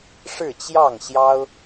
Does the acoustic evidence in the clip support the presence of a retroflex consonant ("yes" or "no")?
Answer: yes